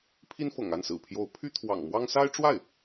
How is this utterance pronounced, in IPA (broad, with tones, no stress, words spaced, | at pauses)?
pʰi˥n fɤ̰˨˩ŋa˥˩nsɹ̩˨˩pʰjo˧˥ʊ̯ pʰy˥t̪ʰwɑ̰˨˩ŋmwɑ˥ŋ sa˥ɪ̯ʈ͡ʂwa˥˩ɪ̯